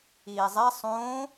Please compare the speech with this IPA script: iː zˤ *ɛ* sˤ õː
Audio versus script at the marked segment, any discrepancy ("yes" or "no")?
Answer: no